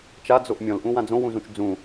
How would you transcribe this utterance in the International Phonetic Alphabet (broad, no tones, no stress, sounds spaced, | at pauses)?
t͡ʃ a d͡z o ʔ mʲ ɔ̃ l ʔ ũ w ã d͡z õ w ũ z ũ t͡ʃ d͡z ũ